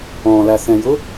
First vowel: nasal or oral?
nasal